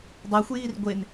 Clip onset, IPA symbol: dˤ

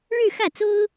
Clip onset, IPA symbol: ɻ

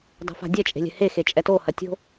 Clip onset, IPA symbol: dˤ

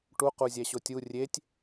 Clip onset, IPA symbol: ʈ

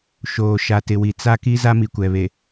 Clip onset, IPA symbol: ʃ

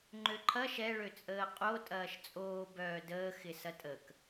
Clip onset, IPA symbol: ŋ͡ǃ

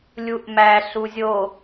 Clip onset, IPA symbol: lʲ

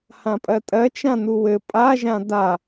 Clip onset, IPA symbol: h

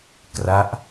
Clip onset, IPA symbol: k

